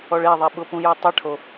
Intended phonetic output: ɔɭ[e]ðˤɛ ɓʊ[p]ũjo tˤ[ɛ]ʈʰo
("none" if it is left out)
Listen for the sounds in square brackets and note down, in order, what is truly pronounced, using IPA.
e, p, ɛ

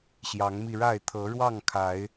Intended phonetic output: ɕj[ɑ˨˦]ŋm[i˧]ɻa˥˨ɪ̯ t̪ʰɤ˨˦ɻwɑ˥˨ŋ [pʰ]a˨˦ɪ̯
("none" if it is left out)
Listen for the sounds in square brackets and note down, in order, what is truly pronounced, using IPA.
ɑ˨˦, i˧, kʰ

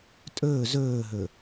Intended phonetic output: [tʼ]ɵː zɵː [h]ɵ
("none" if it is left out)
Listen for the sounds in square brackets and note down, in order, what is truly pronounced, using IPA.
tʼ, ɦ

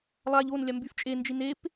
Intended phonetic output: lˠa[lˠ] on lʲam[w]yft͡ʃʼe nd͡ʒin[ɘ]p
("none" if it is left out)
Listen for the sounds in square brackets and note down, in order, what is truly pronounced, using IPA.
ʎ, b, e

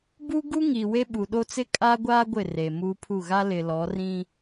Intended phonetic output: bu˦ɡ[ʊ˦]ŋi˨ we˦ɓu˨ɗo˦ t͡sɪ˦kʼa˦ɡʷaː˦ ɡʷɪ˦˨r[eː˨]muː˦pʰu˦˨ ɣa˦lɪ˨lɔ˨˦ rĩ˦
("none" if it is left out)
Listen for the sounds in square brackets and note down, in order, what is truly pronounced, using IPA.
u˦, e˨

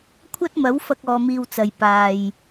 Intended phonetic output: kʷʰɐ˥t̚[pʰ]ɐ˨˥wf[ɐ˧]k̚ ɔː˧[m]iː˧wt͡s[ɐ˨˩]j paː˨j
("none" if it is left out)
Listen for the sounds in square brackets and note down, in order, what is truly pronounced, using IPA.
m, ɐ˧, m, ɐ˨

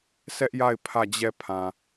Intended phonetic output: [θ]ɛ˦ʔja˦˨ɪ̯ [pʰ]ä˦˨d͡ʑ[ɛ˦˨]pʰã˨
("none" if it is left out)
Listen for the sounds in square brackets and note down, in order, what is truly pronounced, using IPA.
s, pʰ, ɛ˦˨

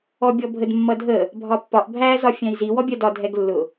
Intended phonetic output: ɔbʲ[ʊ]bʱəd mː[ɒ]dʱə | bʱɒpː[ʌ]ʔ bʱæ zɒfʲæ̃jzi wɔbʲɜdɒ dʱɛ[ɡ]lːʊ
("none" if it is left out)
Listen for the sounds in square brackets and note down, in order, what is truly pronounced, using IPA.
ɔ, ʌ, ɒ, ɡ

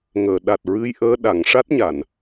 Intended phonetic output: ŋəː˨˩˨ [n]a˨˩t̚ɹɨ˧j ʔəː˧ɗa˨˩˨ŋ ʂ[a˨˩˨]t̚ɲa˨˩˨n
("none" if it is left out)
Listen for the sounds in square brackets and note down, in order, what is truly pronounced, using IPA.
ɗ, a˦˥

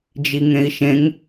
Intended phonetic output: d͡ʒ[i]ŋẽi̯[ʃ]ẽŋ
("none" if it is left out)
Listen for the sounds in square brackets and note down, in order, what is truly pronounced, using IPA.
i, ʃ

